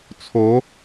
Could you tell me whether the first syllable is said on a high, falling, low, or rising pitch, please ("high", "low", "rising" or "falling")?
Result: rising